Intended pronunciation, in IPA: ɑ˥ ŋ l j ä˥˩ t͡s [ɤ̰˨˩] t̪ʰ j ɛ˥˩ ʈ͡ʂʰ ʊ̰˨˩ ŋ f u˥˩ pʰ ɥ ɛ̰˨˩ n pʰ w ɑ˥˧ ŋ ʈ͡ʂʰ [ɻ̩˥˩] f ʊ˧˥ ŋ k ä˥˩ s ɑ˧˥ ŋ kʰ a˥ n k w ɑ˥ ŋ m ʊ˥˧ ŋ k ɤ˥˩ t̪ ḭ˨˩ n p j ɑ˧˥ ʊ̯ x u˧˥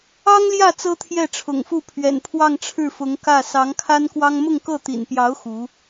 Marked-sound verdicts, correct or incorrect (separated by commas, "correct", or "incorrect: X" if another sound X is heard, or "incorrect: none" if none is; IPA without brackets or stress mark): incorrect: ɤ˥, correct